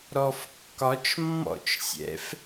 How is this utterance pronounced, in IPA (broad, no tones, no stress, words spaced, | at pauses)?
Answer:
ɾɔfkːɒt͡ʃmːɔ̰t͡ʃsʲɛ̰f